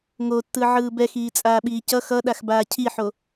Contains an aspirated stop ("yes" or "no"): yes